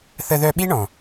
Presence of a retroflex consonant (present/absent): present